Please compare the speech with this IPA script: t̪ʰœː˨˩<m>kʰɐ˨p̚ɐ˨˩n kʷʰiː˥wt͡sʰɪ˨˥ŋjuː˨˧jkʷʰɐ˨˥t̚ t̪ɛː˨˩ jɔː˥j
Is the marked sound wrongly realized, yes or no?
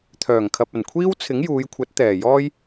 yes